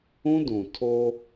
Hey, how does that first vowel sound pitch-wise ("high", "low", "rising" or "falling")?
high